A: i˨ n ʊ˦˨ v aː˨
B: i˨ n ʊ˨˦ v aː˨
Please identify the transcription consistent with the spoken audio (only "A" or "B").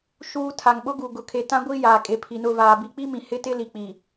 A